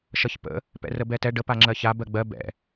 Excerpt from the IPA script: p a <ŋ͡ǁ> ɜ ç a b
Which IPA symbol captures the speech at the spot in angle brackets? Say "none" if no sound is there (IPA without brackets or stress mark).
ŋ͡ǁ